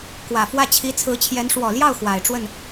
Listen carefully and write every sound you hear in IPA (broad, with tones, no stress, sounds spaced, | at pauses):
k w ä˨˩ f w ä˥˩ t͡ɕʰ i˧˥ t͡sʰ ɹ̩˧˥ t͡ɕʰ j ɛ˧˥ n ʂ w ɔ˨˩ l j ɑ˥˩ ʊ̯ x w a˨˩ ɪ̯ ʈ͡ʂ w ə˥˩ n